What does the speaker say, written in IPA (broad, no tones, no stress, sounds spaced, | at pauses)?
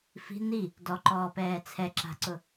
f i̤ n̪ i | d ɔ ǃ ɔː p ɛː t͡sʰ ɛ ǁ a̤ ǀ ʊ